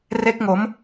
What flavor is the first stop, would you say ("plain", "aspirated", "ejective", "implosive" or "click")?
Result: plain